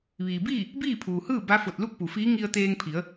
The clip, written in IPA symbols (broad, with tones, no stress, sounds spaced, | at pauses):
ʋ iː˩ b iː˥˨ | b iː˥˨ pʰ uː˩ h ɯː˥˨ b a˧˥ f o˧˩ t̚ l u˥˨ k̚ p u˩ f iː˧˥ ŋ i˧ ə̯ t̪ eː˧ ŋ pʰ i˩˧ ə̯